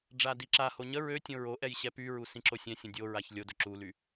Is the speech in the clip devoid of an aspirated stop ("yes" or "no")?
yes